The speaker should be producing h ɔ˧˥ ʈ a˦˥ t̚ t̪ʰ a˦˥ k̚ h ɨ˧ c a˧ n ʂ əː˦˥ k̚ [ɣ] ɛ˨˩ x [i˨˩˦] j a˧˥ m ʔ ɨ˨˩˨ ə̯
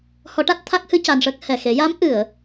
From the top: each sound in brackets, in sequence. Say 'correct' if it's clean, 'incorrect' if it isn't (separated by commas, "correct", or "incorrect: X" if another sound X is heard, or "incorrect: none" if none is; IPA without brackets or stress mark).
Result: incorrect: h, incorrect: e˨˩˦